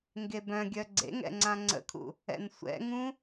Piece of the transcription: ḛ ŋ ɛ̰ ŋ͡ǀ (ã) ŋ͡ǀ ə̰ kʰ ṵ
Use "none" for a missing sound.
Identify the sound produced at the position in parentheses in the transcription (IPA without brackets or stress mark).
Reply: ã